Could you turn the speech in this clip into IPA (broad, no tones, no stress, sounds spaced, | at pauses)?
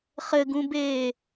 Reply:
χ ɘ ɡ ũ b eː